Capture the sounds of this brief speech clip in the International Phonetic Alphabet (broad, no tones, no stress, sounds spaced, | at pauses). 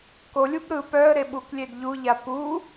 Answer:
k o lʲ u b ɾ ɯ p œ ə̯ ɾ e ɓ u k lʲ e d ʎ u ʎ a p u